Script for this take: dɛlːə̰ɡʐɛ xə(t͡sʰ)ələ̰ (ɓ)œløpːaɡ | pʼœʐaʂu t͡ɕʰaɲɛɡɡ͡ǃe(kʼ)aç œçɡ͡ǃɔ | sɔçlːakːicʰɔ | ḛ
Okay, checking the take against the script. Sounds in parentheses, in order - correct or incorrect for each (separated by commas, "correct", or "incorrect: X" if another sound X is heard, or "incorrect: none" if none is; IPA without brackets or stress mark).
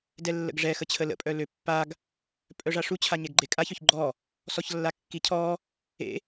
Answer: incorrect: t͡ɕʰ, incorrect: pʼ, correct